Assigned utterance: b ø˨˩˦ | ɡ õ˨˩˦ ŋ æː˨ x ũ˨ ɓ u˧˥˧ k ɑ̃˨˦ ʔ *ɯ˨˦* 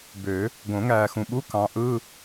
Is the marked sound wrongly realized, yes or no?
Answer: yes